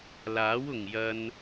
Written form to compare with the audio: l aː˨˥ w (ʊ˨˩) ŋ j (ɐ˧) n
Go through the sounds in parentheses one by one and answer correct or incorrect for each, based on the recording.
correct, correct

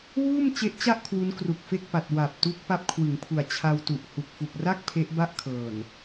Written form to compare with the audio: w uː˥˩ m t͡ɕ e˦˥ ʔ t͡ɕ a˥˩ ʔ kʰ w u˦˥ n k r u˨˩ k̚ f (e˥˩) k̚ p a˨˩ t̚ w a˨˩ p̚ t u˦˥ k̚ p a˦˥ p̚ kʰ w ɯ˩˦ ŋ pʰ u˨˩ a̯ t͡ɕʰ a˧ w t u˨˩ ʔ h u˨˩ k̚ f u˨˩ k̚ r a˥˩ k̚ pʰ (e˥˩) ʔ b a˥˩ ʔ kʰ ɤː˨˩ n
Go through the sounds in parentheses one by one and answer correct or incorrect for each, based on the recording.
correct, incorrect: e˦˥

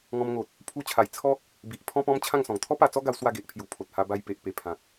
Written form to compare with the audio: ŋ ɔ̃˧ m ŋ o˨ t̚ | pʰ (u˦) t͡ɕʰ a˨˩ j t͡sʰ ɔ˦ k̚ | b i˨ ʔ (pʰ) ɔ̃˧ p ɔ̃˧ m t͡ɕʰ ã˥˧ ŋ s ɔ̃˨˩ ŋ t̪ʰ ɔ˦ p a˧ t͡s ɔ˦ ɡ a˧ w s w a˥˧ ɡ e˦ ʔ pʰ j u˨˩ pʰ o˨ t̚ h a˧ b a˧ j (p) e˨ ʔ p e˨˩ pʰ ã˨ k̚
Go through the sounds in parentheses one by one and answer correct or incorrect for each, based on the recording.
incorrect: u˧, correct, correct

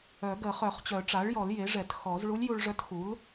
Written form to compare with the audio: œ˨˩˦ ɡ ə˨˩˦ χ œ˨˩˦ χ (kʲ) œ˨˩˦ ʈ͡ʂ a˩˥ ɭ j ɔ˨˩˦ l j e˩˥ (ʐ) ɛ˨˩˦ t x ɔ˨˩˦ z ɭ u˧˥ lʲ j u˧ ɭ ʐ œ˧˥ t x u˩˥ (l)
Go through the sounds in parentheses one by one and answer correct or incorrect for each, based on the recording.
incorrect: t͡ɕ, correct, correct

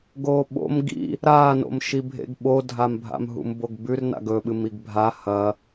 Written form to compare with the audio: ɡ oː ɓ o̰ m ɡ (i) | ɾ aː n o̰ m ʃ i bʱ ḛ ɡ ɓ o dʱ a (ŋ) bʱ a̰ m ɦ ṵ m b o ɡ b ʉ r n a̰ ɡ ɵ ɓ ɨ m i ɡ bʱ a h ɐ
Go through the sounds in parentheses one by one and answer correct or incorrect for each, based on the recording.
incorrect: ḭ, incorrect: m

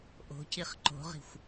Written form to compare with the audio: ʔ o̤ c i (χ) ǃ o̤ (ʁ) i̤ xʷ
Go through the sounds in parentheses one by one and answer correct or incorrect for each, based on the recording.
correct, correct

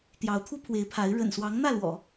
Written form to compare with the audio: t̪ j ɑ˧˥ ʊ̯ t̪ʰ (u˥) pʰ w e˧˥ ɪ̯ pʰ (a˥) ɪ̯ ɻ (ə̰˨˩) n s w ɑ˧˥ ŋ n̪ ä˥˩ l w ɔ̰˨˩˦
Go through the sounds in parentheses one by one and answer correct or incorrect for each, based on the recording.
correct, incorrect: a˧˥, correct

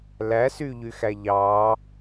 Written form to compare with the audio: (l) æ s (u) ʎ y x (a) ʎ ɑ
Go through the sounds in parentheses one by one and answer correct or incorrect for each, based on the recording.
correct, incorrect: y, incorrect: æ

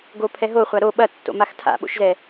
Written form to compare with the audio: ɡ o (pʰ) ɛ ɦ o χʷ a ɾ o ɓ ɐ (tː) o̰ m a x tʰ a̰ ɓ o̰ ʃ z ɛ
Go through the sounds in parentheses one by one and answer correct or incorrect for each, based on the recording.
correct, correct

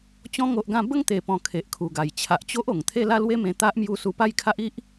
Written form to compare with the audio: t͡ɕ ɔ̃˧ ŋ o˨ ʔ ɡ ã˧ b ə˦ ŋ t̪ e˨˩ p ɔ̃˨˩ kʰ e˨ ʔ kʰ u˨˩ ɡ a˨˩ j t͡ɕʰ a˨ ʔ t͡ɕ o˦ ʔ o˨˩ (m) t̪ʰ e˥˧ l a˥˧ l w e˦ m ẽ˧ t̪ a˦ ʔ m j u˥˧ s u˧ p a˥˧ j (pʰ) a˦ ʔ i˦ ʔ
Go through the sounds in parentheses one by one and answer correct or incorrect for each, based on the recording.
incorrect: ŋ, incorrect: kʰ

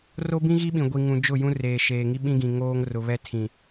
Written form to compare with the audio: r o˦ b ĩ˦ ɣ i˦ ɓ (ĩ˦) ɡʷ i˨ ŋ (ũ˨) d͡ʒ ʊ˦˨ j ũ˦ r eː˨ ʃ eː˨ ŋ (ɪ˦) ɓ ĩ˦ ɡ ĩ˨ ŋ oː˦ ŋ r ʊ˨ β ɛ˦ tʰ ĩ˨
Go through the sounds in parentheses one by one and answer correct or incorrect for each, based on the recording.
incorrect: ĩ˨, correct, incorrect: i˦

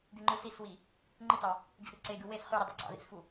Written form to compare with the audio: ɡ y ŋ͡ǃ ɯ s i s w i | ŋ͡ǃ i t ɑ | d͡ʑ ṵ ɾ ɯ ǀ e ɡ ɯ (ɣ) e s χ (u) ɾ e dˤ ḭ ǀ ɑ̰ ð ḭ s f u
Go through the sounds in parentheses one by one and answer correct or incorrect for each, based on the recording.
incorrect: w, incorrect: y

